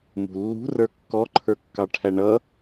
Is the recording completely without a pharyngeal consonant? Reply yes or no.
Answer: yes